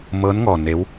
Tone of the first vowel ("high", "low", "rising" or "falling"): rising